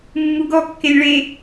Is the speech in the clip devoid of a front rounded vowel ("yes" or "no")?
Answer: yes